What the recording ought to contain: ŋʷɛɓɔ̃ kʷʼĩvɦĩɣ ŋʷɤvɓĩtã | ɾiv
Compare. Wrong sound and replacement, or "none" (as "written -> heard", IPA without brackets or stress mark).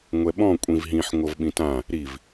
ɣ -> ħ